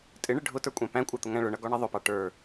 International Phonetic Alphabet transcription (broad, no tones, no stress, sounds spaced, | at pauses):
tʼ ɪ ɳ ɪ ɖʱ ʊ t ə˞ kʷʼ æ̃ p æ̃ kʷʼ ɑ t̪ ʊ ŋ æ̃ ɭ ʊ ɳ ʌ ɡ ɔ ɳ ʌ ðˤ ʊ p ɑ ʈ ə˞